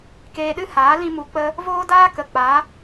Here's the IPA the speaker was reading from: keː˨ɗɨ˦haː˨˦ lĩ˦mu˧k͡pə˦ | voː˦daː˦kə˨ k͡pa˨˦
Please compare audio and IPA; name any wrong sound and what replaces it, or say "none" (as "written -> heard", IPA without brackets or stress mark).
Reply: eː˨ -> eː˧